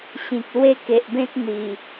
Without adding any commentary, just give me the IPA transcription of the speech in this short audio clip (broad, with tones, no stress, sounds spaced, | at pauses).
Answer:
ɕ ĩ˨ k̚ l w e˦ k e˨ ʔ b ẽ˦ t̚ n̪ i˨˩